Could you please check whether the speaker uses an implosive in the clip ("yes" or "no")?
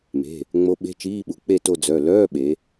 yes